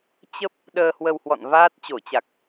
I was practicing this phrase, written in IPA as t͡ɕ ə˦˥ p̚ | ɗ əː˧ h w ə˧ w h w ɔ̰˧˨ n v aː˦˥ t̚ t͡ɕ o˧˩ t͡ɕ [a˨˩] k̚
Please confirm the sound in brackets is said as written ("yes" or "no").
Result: yes